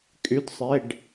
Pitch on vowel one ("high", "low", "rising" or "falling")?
rising